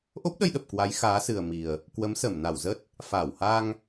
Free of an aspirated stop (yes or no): yes